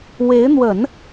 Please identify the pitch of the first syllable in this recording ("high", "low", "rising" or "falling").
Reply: rising